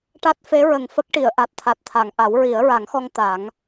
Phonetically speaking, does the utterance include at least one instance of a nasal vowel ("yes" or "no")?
no